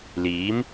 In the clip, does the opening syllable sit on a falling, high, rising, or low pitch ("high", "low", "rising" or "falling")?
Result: rising